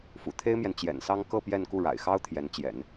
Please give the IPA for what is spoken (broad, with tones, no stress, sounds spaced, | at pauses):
f ṵ˨˩ t̪ʰ e˥ ɪ̯ m j ɛ˨ n t͡ɕ j ɛ̰˨˩ n s ɑ˥ ŋ k ɤ˥˧ p j ɛ˥˧ n k u˥˩ ɻ a̰˨˩ ɪ̯ x ɑ˥ ʊ̯ t̪ʰ j ɛ˧˥ n t͡ɕ j ɛ̰˨˩˦ n